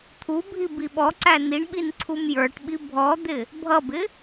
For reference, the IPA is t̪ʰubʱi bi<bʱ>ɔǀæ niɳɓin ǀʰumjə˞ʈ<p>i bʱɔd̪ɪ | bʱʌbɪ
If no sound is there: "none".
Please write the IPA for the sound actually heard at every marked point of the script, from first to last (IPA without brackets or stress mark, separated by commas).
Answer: ɓ, ɓ